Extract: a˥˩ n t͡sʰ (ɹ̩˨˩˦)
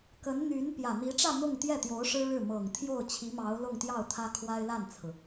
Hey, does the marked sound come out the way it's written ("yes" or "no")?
no